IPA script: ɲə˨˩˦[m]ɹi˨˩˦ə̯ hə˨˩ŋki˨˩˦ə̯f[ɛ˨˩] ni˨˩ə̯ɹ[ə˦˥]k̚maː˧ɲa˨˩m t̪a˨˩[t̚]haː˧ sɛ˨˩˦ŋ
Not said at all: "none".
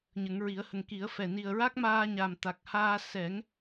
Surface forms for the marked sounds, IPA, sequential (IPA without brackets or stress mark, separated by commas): ŋ, ɛ˨˩, a˦˥, k̚